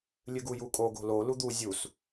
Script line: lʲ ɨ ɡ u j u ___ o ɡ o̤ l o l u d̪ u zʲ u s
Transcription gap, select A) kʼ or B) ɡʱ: A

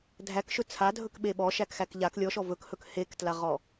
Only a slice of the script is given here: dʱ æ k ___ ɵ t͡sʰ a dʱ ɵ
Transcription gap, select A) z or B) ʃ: B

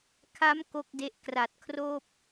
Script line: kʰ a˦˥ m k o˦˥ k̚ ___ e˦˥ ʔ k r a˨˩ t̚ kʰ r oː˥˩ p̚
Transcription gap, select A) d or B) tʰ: A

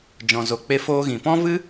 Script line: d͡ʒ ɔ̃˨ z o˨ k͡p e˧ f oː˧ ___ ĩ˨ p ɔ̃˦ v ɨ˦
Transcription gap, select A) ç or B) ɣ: B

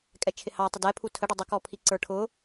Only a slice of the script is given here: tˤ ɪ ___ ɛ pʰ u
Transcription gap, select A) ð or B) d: B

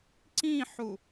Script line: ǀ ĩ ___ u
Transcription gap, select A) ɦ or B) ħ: B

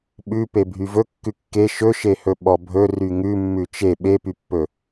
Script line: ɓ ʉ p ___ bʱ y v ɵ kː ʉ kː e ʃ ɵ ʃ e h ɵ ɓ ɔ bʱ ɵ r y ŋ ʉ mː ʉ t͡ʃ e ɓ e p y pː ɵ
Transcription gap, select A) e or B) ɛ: A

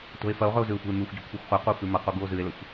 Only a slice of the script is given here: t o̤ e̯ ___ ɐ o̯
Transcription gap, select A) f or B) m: A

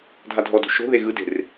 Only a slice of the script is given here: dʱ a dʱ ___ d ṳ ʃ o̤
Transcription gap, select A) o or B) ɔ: B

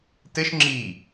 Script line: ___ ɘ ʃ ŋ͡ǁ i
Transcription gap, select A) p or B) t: B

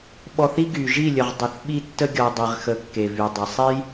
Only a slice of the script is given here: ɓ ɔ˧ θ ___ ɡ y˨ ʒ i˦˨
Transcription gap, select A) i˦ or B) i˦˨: A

